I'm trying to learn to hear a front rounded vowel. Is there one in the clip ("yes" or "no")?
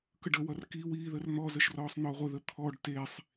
no